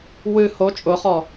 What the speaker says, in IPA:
w ɨ h o t͡ʃʼ ʊ χ ɔ

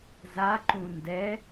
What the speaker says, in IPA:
z a ǃ ũ n d ɛ

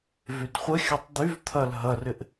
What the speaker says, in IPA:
v y d χʷ ə xʲ ɐ tˤ d̪ y v t̪ʰ ɐ l ɦ ɐ r ɪ ʔ

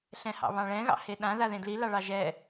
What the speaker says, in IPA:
ɬ ɛ̃ h ɑ̰ β ɑ̃ ɭ ɛ̃ ɣ ɑ̰ h e ɗ ã ð a ð ẽ d l i l ɑ ɭ ɑ ʒ ɛ

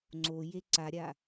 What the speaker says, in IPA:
ŋ͡ǀ o j e ǀ a ɾʲ a

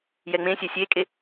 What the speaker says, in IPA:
j ɛ ŋ͡m ẽ sʲ ɛ sʲ e kʼ e

